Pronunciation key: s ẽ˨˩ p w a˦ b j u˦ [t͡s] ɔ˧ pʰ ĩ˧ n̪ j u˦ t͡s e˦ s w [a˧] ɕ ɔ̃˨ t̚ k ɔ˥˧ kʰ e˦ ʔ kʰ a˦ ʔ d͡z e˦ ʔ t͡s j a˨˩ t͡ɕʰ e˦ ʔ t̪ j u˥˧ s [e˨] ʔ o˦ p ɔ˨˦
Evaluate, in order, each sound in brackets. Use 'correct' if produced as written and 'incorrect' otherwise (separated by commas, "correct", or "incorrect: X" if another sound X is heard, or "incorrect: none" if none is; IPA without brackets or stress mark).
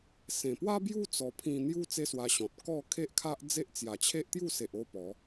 correct, correct, correct